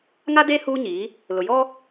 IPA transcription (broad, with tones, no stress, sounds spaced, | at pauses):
ŋ a˦ d eː˦ h uː˦ ɲ iː˨˦ | l ʊ˨ j ɔ˦